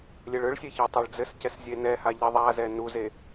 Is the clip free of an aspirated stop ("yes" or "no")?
yes